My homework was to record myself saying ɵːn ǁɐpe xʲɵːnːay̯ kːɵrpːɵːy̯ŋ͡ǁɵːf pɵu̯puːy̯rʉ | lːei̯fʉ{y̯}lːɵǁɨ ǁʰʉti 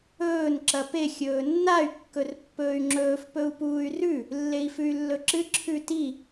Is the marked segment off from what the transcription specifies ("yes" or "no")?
no